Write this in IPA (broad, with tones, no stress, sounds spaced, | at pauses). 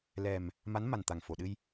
l ɛ˨˩ m | m a˧˥ n m a˨˩ n t̪ a˨˩ ŋ f o˨˩˨ ɗ ɨ˧ j